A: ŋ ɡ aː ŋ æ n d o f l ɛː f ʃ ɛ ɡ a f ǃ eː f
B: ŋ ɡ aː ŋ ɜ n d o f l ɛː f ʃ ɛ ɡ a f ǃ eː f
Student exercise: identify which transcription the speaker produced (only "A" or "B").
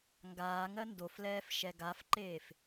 B